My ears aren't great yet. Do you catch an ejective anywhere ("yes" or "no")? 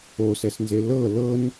no